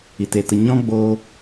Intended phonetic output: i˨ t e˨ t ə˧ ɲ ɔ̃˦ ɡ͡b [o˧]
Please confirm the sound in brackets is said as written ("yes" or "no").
yes